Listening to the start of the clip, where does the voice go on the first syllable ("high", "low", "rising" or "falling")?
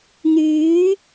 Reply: rising